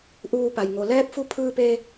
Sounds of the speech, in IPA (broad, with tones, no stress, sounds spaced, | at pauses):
ʔ uː˧ p a˩ j ŋ o˩ l ɛː˧˥ p̚ f u˧ pʰ ɯː˧ p e˧